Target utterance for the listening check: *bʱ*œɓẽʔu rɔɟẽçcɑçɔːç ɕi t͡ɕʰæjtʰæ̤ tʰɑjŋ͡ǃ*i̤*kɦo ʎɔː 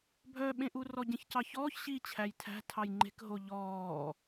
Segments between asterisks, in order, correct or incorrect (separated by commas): correct, incorrect